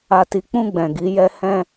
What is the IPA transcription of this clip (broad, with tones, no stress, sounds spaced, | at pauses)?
a˧ t i˧ k͡p ũ˧ ɡ͡b ɛ̃˨ ɡ i˨˦ j ɛ˦ h ɛ̃˧